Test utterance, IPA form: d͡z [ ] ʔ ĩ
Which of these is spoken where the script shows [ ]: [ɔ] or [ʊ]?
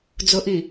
ʊ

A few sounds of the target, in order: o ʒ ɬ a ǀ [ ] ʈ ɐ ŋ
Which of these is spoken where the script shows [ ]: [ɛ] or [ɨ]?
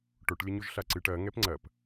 ɨ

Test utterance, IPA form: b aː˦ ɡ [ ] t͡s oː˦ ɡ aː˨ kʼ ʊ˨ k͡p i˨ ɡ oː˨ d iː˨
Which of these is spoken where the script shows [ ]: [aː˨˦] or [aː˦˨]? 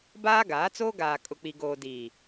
aː˨˦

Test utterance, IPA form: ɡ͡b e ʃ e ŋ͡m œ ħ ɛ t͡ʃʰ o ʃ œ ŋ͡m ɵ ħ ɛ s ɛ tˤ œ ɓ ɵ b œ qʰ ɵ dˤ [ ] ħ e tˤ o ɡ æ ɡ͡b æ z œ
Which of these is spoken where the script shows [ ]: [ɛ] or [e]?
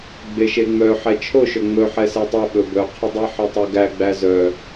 e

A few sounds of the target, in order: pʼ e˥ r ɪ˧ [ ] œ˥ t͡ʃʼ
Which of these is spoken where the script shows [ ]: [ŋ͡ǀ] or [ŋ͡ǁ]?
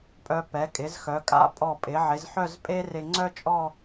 ŋ͡ǀ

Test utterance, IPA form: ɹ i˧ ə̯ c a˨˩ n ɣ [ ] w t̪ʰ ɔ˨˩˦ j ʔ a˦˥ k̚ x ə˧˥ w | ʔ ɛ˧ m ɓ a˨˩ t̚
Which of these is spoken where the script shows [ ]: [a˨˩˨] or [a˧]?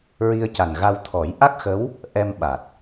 a˧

